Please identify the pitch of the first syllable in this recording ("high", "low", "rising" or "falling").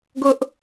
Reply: high